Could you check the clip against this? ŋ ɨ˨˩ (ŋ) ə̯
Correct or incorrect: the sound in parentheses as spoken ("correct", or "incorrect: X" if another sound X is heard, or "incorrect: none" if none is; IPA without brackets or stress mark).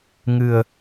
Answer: incorrect: none